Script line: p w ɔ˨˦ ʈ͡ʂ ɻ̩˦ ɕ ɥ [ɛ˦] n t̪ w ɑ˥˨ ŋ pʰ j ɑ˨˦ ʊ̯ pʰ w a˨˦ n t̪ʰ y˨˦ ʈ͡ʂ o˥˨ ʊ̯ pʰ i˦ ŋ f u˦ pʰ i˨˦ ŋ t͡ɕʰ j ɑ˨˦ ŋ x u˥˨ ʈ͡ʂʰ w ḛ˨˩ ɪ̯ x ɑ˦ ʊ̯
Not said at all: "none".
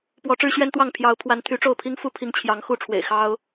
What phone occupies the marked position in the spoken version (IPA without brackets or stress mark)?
ɛ˦